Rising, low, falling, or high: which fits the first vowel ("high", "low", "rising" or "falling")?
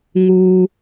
low